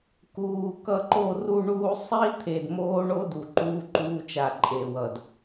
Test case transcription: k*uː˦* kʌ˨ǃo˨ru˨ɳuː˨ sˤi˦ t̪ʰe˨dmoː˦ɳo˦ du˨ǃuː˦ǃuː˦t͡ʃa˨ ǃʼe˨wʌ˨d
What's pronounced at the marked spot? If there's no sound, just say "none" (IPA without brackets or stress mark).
uː˨